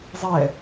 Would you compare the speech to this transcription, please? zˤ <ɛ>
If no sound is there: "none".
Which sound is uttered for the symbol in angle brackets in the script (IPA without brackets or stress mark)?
ɛ